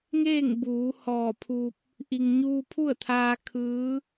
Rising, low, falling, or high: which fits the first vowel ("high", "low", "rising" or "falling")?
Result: falling